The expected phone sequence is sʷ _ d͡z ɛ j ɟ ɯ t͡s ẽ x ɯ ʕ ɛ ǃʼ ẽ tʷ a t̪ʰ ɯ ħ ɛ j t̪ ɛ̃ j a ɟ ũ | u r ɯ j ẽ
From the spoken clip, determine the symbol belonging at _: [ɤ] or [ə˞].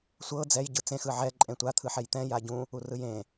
ɤ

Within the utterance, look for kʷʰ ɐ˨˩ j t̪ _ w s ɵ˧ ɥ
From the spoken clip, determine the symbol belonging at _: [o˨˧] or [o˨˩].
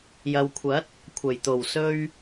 o˨˩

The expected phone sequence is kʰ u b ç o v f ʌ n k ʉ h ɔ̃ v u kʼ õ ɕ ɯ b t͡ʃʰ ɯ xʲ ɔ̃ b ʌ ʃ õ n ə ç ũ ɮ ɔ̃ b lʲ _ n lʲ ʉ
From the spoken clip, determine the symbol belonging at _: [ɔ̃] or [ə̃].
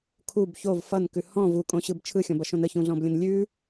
ə̃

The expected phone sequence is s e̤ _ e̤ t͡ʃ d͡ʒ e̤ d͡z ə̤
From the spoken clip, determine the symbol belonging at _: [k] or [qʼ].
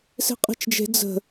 qʼ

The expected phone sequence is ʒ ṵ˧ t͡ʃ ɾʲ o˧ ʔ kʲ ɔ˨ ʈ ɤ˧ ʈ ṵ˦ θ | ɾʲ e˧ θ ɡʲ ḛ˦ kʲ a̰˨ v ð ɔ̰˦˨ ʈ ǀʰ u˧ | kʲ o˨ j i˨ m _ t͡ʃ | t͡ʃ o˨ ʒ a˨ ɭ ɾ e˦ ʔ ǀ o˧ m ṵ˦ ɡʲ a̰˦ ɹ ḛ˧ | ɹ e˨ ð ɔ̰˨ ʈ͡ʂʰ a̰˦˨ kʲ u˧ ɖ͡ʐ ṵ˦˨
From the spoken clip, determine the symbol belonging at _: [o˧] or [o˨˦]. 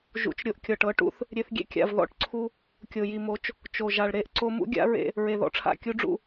o˨˦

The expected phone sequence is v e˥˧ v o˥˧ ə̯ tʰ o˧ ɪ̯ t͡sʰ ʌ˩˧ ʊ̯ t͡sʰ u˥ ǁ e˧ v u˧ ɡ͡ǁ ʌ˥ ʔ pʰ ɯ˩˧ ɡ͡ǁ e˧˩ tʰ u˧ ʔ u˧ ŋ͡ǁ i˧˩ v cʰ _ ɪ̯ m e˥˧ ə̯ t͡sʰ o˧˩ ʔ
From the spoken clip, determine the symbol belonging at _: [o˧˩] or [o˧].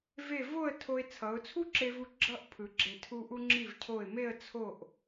o˧˩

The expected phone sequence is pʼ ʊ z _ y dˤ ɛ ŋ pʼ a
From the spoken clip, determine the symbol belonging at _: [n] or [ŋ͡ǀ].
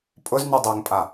n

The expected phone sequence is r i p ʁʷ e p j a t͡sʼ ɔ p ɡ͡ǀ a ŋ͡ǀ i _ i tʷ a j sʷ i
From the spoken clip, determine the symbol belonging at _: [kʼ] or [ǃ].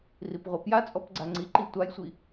ǃ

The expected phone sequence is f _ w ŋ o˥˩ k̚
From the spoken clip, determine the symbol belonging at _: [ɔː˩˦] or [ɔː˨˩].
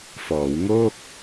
ɔː˩˦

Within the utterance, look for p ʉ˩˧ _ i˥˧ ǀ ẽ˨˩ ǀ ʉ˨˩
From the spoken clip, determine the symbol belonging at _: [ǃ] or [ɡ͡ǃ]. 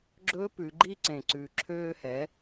ɡ͡ǃ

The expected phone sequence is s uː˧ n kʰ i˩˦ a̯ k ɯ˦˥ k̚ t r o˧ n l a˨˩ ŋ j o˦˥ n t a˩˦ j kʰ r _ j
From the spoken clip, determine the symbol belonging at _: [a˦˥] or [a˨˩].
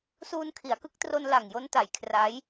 a˦˥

